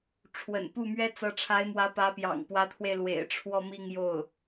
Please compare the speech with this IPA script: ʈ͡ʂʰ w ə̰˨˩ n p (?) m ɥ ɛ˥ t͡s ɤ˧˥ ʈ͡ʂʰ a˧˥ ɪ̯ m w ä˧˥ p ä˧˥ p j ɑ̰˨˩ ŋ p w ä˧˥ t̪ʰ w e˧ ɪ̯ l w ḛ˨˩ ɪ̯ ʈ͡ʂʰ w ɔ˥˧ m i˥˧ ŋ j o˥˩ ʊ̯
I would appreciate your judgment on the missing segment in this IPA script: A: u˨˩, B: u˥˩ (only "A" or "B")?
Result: B